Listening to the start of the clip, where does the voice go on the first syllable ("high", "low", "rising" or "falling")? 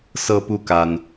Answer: high